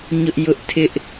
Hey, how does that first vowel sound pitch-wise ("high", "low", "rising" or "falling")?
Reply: high